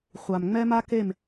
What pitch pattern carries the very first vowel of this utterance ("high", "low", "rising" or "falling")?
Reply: low